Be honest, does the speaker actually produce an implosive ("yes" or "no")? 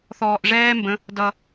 no